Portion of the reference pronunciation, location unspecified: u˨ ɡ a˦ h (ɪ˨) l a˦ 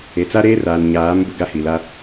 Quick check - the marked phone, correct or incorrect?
incorrect